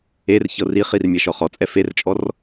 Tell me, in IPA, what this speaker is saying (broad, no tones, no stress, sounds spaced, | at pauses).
e r ç ɤ r i χ i r mʲ ɛ ʃ ɔ χ ɔ t͡sʼ ɛ f e r t͡ʃʼ ɔ r